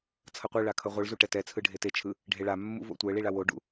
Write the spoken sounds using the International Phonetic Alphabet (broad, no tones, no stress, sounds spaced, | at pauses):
t͡sʰ ʌ qʷ ɛ ɭ a kʰ ʌ ʁʷ ɯ ɭ z u ʈ ɛ t ɛ t͡sʰ ɯ ɖʱ e t e t͡ʃʰ ɯ | ɖʱ e ɭ a mː ṵ v o̰ tʷ ɛ ɭ i ɭ a w o ɖ ṵ